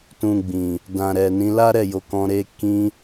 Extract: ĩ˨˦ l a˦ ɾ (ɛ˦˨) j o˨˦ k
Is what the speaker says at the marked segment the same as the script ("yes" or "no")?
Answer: yes